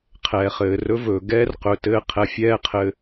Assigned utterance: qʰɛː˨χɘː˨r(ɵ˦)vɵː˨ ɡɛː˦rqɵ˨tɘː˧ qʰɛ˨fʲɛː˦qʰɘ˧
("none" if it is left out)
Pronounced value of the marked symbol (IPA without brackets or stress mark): ɵ˦